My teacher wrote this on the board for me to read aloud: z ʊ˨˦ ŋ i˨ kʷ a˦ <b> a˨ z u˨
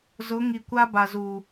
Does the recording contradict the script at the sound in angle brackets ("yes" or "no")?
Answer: no